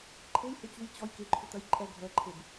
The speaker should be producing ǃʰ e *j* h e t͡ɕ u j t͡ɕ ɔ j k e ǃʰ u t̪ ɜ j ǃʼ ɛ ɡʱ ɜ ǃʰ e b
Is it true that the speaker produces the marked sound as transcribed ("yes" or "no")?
yes